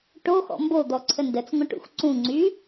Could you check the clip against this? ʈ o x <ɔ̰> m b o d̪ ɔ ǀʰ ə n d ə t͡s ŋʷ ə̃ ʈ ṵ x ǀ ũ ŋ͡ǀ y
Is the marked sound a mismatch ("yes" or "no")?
no